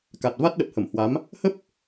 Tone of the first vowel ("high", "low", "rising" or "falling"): low